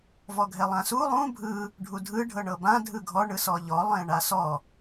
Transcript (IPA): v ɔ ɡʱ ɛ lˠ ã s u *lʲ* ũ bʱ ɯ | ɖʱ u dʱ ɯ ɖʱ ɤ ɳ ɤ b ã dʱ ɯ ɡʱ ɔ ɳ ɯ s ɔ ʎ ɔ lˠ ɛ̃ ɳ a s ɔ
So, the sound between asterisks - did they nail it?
no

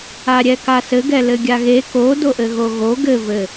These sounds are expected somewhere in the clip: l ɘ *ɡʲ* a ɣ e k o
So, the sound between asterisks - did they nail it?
yes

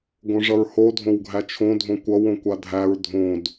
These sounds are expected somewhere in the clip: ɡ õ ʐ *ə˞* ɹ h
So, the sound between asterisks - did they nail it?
no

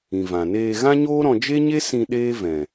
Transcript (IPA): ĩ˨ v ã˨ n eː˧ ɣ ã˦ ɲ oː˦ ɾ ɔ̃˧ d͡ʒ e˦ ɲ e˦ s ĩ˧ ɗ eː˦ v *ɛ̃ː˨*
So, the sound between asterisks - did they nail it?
no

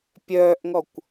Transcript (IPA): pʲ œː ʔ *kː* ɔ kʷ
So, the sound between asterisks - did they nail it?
no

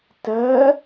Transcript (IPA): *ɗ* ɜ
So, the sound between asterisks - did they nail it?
no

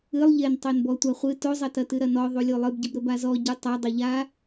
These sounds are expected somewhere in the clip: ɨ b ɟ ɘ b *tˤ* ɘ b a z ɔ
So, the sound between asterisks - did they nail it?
no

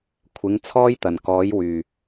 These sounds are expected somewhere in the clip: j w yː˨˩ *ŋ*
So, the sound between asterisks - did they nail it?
no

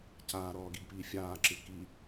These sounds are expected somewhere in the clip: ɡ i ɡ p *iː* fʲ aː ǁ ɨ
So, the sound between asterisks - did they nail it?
yes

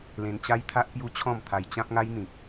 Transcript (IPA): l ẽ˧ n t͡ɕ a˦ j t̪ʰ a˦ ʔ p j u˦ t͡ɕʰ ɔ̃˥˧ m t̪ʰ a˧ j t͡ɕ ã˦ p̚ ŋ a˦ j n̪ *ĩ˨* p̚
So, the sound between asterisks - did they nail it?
yes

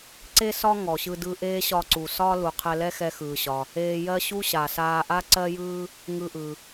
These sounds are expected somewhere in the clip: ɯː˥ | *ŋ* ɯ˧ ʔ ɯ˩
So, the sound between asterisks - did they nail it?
yes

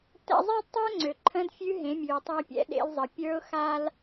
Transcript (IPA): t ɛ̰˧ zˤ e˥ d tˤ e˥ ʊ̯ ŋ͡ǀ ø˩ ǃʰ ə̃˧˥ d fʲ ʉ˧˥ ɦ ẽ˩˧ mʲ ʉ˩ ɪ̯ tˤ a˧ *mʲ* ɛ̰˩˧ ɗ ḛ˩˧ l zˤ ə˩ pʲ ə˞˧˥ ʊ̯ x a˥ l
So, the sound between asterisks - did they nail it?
no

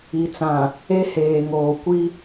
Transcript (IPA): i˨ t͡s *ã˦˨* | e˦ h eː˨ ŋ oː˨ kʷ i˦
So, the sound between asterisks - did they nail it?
no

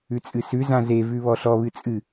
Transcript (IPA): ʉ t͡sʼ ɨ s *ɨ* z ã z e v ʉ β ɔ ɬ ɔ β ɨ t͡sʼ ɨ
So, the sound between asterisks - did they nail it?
no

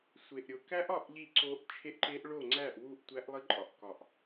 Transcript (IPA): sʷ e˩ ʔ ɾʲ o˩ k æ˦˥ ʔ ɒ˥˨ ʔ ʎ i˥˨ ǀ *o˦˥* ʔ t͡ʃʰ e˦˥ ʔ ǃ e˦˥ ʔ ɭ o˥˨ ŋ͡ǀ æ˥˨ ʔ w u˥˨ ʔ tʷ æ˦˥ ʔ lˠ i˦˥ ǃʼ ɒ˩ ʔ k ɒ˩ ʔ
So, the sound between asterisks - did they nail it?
yes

